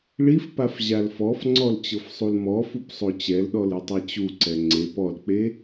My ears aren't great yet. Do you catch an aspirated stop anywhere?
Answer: no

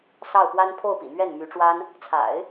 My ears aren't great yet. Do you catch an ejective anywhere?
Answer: no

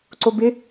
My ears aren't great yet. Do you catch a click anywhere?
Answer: yes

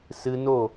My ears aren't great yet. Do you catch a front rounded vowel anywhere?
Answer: no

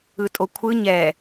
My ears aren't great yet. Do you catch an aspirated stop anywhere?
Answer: yes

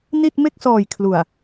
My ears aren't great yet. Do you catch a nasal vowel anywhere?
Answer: no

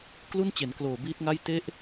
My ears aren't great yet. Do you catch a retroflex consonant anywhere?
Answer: no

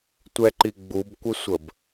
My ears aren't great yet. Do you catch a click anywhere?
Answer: yes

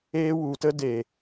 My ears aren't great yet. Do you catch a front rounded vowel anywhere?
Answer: no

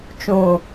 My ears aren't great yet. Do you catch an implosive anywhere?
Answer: no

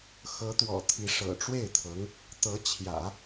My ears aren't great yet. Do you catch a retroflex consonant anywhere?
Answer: yes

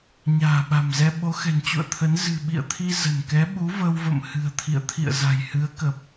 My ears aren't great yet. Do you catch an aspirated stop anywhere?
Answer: yes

